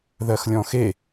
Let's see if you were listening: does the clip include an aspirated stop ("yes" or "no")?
no